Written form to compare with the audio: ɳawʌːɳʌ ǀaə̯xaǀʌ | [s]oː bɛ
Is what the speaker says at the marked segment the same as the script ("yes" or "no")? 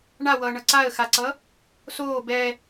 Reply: yes